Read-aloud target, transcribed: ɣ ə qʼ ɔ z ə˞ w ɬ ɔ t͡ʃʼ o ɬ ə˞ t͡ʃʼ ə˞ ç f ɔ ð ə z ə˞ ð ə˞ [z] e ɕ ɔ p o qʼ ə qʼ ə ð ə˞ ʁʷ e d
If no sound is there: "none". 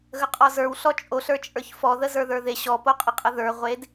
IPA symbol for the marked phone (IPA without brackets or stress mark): ð